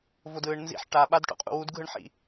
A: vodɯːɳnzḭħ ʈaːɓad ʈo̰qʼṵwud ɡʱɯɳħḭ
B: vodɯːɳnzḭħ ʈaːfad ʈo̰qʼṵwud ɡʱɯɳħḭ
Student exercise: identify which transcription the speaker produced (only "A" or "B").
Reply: A